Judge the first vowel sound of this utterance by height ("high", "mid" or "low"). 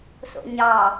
mid